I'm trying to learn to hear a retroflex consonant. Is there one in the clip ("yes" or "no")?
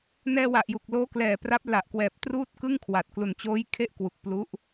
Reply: no